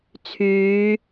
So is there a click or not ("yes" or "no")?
no